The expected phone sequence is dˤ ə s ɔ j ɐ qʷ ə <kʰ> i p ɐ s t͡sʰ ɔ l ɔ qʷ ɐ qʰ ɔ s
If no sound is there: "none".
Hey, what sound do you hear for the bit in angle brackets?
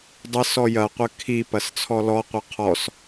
kʰ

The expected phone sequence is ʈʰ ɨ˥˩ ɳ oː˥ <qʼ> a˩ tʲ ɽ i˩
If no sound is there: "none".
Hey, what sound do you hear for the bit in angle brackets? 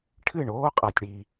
qʼ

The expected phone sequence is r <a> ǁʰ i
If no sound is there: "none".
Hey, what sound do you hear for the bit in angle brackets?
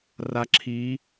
a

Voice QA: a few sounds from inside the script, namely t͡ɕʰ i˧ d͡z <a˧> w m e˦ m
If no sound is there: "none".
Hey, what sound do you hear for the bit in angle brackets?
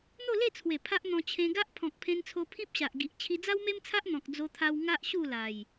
a˦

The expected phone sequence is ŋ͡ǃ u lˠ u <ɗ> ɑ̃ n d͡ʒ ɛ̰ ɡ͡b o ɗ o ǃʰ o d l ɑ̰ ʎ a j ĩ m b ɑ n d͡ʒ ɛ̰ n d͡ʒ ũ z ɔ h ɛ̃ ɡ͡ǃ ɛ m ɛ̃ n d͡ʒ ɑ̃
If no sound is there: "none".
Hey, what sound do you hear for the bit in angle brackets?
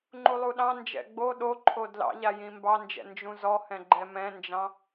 ɗ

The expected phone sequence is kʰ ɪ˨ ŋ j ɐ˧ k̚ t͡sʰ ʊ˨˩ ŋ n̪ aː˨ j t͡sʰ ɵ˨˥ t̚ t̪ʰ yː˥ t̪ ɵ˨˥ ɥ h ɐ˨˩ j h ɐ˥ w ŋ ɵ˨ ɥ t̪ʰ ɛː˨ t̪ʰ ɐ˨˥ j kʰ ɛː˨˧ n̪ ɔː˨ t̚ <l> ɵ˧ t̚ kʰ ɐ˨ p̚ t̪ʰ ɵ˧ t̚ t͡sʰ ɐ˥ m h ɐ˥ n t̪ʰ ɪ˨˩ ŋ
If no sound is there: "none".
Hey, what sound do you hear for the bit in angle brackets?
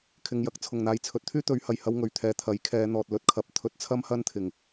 l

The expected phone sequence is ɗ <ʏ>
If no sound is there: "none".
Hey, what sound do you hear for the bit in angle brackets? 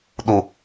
u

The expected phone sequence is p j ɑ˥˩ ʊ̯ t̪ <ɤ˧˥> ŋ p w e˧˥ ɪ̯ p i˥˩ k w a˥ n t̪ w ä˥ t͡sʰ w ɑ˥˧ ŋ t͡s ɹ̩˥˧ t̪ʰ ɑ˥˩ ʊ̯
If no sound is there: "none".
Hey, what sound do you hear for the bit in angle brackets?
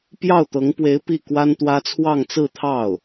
ɤ˧˥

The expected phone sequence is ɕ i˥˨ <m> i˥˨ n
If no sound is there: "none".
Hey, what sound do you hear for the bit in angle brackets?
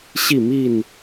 m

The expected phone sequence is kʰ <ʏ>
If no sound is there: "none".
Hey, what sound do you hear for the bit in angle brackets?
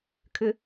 ʏ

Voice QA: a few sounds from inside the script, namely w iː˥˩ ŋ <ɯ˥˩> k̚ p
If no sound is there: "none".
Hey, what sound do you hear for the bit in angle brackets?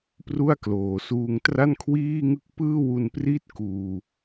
ɯ˥˩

